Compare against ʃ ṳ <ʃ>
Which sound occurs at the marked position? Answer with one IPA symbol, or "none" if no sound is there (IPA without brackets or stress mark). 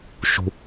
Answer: none